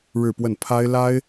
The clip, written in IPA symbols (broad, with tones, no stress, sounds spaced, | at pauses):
ɻ ɻ̩˥˧ p w ə˥˩ n pʰ a˥ ɪ̯ l a˥ ɪ̯